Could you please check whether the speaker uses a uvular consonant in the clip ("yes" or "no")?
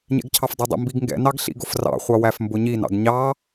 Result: yes